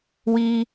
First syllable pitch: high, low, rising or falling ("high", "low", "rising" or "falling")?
high